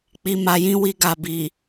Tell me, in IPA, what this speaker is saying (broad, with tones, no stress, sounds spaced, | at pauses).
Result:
k͡p i˧ m a˧ j ĩ˦ w i˧ ɡ a˨ b i˨